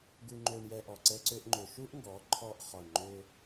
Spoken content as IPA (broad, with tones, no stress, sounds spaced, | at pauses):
ɡ u˧ ŋ͡ǃ ø˧ ɳ j ɛ˧ ʔ ɔ˨ ǀ ɛ˦ ǀ ø˦ ʔ ŋ͡ǃ ø˧ ʃ u˦ ʔ ŋ ɡ ɔ˨˦ ǃʰ ɔ˧ ʔ χ ɔ˨ ɳ ŋ͡ǃ ø˧